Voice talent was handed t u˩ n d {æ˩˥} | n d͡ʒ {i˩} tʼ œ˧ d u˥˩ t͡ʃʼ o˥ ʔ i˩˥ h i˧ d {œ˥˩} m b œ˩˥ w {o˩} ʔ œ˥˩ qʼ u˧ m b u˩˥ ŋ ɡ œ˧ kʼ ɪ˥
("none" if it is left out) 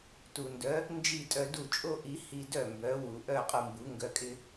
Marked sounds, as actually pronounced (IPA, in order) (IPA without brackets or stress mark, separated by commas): œ˩˥, i˥˩, œ˥˩, u˩